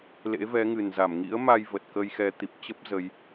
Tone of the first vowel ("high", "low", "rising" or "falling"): rising